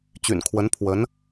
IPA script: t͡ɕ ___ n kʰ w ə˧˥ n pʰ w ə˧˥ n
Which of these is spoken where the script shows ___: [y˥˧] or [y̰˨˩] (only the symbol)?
y̰˨˩